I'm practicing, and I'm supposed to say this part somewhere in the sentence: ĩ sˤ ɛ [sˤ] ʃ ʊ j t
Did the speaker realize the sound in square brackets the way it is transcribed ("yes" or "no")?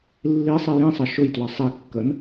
no